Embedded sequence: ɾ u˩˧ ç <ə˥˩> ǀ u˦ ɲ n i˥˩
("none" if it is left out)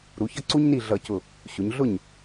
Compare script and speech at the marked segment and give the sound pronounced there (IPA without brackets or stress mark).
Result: ʌ˥˩